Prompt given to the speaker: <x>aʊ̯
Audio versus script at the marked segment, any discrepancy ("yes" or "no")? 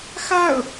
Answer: no